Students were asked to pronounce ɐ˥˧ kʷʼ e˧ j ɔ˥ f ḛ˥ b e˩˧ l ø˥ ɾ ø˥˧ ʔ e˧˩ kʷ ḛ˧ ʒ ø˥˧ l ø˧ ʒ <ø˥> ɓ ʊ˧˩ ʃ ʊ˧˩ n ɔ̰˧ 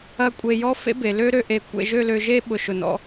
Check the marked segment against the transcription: incorrect: e˥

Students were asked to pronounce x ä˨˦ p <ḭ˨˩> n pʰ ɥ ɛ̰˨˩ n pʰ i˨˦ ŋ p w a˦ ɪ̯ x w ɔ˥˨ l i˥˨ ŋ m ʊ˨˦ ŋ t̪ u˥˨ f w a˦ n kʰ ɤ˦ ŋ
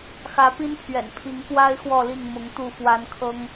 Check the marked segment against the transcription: incorrect: i˦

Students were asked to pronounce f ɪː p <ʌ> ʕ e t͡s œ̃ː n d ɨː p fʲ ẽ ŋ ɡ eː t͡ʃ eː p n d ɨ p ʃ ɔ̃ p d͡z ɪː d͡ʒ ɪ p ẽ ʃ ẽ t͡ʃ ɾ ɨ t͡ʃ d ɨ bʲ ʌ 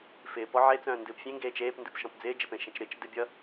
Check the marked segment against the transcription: incorrect: ɔ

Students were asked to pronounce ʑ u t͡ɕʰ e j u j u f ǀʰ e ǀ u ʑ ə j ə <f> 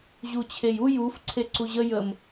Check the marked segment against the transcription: incorrect: m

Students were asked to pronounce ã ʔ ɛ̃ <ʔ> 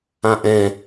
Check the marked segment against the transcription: incorrect: none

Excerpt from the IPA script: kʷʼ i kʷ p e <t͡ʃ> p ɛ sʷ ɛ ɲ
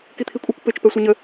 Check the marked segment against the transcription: correct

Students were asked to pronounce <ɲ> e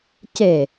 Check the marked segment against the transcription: incorrect: c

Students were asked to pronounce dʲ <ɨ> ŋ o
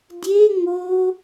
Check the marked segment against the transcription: incorrect: e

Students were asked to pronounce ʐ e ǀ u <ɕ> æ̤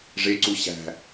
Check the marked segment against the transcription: correct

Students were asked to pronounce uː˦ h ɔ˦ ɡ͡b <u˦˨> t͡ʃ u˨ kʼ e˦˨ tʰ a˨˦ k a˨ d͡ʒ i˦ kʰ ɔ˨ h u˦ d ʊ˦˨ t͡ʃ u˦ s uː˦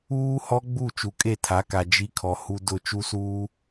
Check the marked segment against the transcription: correct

